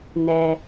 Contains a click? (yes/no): no